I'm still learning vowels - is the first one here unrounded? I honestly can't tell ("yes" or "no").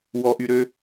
no